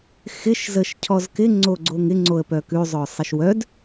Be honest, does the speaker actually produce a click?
yes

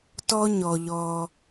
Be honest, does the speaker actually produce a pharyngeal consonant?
no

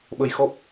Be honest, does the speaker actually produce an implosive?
yes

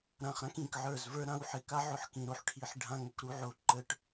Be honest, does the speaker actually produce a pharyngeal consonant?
yes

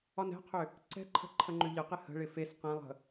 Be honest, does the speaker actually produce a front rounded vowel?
yes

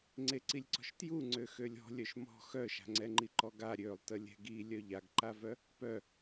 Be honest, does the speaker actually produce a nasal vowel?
no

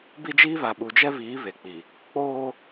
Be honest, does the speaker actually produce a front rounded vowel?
no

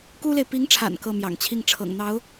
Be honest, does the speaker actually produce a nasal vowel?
no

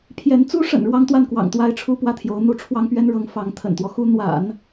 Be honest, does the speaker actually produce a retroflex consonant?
yes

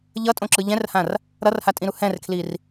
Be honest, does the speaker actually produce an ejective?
yes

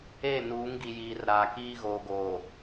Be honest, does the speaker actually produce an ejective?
no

